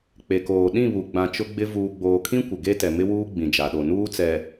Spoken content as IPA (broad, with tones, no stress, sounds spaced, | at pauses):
k͡p e˨ k oː˨ ɗ ĩ˦˨ β u˨ ɡ͡b ã˨ t͡ʃ ʊ˦ ɡ͡b ɪ˦ v uː˨ ɡ͡b oː˨ kʰ ĩ˦ kʷ ɪ˨ ɡ e˦ t ɛ˨ m ɪ˦ w uː˦ ɡ͡b ĩ˨ d͡ʒ a˨ ɗ o˨ n uː˦ t͡s ɛ˨